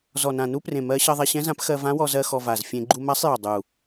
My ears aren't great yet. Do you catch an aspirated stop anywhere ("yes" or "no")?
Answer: no